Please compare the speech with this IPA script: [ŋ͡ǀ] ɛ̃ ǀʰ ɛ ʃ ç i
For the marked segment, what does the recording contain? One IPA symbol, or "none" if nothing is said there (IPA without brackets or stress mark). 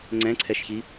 ŋ͡ǀ